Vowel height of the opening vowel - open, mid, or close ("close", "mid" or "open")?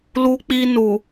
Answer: close